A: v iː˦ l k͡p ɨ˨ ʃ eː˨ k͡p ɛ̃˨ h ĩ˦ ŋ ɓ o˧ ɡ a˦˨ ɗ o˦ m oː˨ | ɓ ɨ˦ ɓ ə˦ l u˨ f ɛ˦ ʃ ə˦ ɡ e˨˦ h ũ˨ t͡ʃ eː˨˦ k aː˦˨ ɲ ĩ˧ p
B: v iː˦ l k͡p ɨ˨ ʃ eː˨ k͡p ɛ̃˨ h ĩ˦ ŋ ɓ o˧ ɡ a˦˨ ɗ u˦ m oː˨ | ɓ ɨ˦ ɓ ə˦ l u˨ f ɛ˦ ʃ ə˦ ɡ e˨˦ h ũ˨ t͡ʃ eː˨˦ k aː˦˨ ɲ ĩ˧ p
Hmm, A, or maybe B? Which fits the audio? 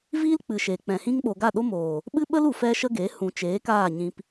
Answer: A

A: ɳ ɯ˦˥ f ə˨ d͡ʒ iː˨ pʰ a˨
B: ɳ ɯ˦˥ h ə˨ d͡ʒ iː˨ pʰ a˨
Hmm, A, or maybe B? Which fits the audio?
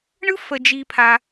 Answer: A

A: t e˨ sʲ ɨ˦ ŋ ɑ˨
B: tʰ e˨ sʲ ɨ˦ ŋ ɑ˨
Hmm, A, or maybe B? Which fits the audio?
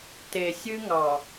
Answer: A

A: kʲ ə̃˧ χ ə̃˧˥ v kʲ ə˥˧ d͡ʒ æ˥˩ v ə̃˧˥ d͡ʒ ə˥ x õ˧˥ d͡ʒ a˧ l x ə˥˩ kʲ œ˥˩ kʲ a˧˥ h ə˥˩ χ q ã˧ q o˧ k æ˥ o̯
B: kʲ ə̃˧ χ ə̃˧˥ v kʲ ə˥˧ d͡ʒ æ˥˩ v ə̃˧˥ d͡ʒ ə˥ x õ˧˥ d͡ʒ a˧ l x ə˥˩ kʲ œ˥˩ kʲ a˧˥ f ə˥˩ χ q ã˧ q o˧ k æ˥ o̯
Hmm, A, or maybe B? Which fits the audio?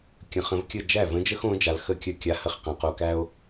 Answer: A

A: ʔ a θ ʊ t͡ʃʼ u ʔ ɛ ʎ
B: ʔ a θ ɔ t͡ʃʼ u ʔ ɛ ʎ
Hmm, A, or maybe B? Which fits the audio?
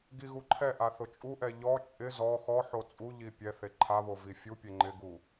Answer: A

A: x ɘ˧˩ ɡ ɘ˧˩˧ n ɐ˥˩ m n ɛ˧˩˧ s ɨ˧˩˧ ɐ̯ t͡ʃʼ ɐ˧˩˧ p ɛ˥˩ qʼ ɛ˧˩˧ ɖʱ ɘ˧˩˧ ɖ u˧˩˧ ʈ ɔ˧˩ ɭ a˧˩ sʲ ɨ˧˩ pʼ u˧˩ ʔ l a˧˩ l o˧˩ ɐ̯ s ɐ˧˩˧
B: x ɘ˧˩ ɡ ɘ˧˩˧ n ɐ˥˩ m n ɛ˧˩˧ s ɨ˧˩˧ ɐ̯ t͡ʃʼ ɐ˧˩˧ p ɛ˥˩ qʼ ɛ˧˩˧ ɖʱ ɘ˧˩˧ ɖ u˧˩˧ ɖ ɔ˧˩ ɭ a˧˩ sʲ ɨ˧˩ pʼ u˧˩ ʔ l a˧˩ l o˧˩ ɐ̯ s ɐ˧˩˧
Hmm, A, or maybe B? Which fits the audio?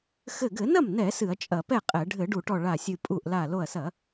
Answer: A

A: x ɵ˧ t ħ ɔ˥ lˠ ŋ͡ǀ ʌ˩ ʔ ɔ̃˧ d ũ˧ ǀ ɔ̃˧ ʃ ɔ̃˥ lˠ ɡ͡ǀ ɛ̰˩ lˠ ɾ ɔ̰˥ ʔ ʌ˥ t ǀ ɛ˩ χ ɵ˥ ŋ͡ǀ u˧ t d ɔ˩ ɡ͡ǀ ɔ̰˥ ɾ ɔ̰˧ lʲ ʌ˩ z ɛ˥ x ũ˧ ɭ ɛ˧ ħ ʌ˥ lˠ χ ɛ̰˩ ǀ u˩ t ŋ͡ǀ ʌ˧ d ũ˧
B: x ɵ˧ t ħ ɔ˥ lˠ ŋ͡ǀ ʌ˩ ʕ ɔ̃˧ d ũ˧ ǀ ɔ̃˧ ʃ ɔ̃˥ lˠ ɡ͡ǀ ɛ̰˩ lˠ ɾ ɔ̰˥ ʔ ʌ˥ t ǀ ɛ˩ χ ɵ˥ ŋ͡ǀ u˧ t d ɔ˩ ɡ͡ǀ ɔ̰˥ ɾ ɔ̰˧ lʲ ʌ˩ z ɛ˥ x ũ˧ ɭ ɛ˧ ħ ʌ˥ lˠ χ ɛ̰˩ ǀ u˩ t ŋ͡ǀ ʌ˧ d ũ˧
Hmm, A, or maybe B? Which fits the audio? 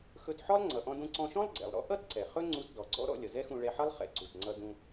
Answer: A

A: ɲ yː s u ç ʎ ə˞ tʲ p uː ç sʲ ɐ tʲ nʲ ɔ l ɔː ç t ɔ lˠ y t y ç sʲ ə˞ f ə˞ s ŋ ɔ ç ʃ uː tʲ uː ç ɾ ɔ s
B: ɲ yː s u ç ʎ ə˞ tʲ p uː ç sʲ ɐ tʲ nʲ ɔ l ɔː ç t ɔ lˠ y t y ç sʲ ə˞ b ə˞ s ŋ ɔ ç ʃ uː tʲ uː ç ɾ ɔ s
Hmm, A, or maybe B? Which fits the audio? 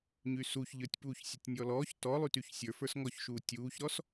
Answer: A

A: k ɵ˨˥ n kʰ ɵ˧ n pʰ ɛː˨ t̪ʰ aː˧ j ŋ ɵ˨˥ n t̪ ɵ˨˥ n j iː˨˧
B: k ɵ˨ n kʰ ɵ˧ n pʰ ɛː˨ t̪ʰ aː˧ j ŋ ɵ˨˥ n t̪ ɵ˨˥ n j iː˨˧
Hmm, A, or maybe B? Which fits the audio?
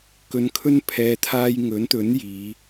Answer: B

